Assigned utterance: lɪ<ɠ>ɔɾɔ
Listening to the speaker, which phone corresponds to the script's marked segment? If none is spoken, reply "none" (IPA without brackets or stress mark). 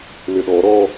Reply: ɗ